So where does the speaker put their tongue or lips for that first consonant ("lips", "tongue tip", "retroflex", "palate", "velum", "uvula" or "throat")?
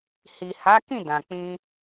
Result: throat